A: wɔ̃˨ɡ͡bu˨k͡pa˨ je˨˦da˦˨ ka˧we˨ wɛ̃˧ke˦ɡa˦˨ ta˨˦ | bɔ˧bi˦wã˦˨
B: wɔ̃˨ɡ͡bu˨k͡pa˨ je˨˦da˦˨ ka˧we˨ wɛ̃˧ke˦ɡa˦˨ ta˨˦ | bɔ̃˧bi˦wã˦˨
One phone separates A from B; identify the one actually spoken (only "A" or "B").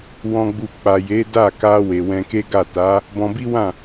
B